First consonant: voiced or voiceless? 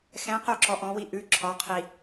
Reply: voiceless